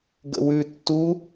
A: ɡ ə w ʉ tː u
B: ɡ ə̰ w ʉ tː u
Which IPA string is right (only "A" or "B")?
B